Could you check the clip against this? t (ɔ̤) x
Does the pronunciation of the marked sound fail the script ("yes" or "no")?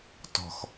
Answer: no